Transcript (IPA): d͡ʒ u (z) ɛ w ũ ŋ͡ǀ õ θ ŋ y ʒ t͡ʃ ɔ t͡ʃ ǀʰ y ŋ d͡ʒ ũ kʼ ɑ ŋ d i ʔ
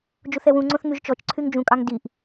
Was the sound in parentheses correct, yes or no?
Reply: no